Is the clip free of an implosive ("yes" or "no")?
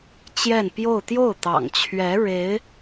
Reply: yes